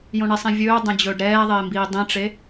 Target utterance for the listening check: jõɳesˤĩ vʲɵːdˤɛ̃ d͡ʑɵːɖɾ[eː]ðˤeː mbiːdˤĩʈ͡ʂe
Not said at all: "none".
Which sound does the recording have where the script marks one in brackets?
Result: ɛː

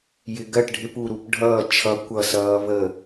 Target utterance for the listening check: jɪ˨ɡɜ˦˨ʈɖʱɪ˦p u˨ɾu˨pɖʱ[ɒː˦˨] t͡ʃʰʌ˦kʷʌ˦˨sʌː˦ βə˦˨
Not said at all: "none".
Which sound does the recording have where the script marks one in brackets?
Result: ʌː˦˨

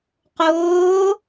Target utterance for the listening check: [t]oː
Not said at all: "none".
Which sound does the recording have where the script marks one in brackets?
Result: q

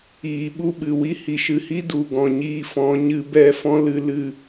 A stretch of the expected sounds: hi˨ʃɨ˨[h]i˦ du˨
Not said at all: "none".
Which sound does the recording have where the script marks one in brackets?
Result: h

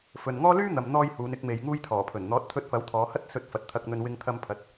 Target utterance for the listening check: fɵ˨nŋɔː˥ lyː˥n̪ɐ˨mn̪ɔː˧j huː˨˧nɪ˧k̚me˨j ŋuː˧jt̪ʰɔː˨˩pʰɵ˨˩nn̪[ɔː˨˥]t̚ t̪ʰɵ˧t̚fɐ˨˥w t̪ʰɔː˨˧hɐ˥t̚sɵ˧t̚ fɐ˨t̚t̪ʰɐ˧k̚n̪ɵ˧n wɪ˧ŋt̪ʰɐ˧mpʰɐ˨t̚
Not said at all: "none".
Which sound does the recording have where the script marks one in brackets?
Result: ɔː˨˥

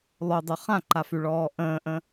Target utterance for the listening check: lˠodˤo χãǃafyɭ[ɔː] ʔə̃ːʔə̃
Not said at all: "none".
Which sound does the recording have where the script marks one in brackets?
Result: ɔː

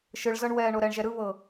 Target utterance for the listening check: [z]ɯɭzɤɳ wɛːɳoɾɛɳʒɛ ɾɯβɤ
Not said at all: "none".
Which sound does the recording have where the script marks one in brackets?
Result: ʃ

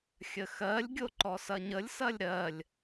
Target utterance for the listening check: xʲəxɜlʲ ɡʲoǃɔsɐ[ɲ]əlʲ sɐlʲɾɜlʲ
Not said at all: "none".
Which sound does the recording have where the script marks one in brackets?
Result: ɲ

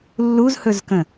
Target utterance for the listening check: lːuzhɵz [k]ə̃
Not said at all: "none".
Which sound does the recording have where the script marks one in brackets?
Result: k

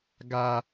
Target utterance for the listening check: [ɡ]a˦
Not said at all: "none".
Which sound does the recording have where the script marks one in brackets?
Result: ɡ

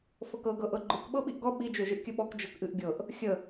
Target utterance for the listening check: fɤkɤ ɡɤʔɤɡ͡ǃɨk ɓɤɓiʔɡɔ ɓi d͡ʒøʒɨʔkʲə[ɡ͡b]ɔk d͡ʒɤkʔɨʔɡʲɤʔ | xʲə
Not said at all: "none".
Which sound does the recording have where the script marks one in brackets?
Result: ɓ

